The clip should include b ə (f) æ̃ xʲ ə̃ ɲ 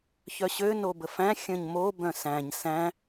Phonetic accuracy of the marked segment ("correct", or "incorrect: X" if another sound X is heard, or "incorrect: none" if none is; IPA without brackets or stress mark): correct